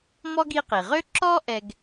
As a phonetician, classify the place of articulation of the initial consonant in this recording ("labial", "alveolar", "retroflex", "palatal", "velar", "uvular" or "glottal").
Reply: labial